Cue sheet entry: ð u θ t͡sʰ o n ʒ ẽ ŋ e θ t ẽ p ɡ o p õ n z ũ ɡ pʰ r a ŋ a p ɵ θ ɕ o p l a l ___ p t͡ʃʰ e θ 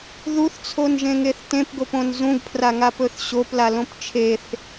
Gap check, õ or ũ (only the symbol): õ